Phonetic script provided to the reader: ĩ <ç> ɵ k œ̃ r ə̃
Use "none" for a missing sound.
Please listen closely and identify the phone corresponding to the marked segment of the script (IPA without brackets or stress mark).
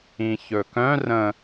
ç